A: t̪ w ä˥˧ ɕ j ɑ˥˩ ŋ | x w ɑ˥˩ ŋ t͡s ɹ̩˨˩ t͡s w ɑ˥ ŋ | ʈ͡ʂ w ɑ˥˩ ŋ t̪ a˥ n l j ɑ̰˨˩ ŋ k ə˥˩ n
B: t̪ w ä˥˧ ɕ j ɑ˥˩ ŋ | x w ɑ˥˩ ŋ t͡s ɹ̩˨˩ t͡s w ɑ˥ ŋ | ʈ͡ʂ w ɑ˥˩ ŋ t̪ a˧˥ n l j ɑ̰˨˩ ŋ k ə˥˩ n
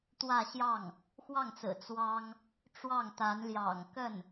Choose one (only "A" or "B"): B